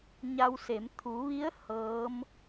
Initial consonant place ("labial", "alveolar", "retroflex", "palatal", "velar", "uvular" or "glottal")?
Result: palatal